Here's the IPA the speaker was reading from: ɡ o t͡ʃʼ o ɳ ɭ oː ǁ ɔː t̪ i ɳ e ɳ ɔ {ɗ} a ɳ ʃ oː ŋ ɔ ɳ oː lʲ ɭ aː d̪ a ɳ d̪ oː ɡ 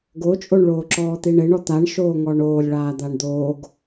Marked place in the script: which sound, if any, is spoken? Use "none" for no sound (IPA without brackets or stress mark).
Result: t̪